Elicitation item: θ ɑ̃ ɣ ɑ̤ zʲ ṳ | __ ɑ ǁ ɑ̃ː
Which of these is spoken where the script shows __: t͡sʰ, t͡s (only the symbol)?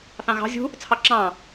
t͡sʰ